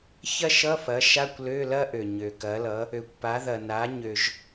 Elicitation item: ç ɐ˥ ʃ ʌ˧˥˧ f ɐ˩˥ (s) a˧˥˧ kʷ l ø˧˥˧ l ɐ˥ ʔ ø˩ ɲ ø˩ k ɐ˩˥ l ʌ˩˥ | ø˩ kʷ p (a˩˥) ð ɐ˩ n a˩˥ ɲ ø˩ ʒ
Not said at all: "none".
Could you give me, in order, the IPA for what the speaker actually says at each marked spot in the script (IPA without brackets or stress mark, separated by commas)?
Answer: ʃ, a˩˥